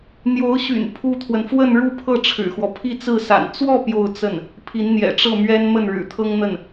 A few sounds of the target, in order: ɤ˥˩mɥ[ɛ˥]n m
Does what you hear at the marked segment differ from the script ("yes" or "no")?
no